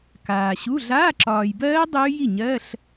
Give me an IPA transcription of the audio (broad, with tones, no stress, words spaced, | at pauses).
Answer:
kaː˨ɕu˧˥˧ ɮaː˧˥˧ǁɒː˨j bɜː˦˥ dˤʉː˦˥ji˥˩ɲɜ˧˥˧ɬ